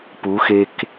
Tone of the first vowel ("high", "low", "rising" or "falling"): rising